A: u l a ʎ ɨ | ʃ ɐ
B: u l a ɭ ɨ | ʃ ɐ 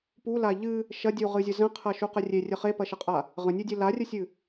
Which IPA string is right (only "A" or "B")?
A